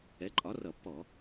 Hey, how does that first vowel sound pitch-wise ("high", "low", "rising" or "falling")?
rising